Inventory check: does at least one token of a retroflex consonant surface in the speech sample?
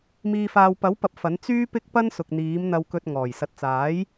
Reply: no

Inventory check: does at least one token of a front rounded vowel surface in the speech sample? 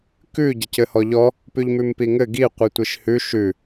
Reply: no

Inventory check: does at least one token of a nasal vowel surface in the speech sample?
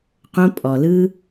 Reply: yes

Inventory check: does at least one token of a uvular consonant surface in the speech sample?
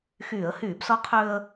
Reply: yes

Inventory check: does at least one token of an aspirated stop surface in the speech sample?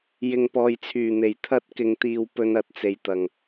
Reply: yes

